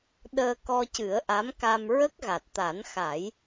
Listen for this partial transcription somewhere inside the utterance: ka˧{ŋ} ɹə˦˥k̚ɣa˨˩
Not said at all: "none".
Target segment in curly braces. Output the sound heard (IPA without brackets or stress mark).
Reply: m